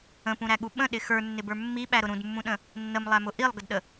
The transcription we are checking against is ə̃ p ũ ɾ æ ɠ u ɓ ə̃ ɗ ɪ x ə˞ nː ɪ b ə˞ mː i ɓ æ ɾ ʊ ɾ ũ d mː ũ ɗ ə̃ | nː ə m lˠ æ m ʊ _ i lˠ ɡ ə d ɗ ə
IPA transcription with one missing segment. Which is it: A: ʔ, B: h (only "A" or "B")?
A